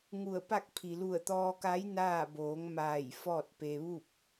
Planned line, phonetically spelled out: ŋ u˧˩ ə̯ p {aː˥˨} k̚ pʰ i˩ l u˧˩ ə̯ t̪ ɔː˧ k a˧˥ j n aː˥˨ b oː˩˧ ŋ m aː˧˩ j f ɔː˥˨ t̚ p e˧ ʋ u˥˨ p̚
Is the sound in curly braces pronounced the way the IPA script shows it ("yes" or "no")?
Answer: no